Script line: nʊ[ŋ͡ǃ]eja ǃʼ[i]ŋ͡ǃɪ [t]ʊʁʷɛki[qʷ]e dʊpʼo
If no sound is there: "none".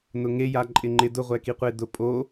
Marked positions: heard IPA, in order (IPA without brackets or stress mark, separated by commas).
ŋ, ɪ, d, qʷ